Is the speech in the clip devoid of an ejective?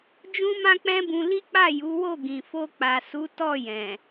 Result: yes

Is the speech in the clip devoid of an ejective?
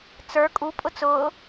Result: no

